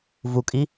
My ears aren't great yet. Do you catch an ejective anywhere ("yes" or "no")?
yes